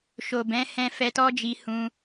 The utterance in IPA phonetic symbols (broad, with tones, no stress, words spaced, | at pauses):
ʃo˨bɛ̃˨˦hɛ̃˧ fɛ˧tɔ˦d͡ʒi˧ hũ˧